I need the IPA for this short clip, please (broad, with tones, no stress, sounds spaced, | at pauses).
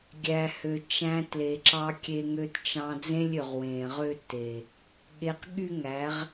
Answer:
ɡʲ æ˨ h ø˨ t͡ʃ æ̃˧ t l e˨ ǁ ɑ˧ kʲ e˧ ŋ ø˧ t t͡ʃ ɑ̃˧ d͡z ẽ˦ lʲ ø˨ ʁ w ẽ˨ ʁ ø˦ t e˨ | ɠ e˧ q ɠ y˦ ŋ æ˨˦ ʁ